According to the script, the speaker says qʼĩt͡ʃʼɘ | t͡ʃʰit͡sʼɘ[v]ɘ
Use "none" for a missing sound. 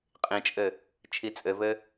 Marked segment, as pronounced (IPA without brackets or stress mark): v